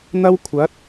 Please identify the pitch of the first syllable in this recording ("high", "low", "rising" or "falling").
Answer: high